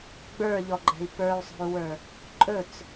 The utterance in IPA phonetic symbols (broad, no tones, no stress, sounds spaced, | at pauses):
ɡ͡b ə˞ ʎ ɔ ɡ͡ǃ ɛ̤ i̯ p ə˞ u̯ sˤ o̤ u̯ w ə˞ | ǃʼ ɵ t͡s